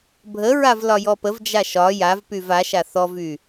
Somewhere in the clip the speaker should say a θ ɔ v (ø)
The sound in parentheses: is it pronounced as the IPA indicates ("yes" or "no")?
no